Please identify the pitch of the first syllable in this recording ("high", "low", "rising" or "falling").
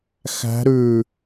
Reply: rising